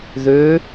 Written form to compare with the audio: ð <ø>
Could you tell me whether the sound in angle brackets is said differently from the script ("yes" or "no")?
no